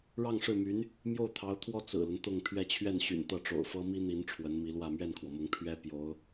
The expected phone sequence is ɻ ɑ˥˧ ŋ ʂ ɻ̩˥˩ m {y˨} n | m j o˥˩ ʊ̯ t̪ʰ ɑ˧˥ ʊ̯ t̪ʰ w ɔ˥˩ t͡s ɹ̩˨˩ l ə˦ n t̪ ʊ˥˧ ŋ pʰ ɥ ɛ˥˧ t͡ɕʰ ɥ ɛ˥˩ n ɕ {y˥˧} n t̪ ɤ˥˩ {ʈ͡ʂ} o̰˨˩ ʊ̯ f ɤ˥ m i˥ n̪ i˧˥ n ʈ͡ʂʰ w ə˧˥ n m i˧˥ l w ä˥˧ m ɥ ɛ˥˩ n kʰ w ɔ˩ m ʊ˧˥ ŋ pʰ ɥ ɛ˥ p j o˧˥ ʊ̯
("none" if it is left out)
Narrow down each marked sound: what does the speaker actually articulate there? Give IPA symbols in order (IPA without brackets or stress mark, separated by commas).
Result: y˧˥, y̰˨˩, ʈ͡ʂ